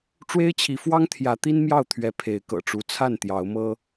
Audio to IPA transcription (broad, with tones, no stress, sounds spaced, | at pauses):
ʈ͡ʂ w e˦ ɪ̯ t͡ɕʰ i˨˦ f w ɑ˦ ŋ t̪ʰ j ä˨˦ t̪ i˦ n m j ɑ˥˨ ʊ̯ t̪ʰ ɥ ɛ˨˦ pʰ e˨˦ ɪ̯ k ɤ̰˨˩ ʈ͡ʂ u˨˦ t͡sʰ a˥˨ n t̪ j ɑ˨˦ ʊ̯ m ɤ˦